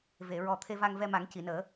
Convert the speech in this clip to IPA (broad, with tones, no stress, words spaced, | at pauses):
ve˨˩˨ɹɔ˨˩ t̪ʰe˧va˧ŋvɛ˧ma˨˩˦ŋ ci˨˩˨nəː˨˩˦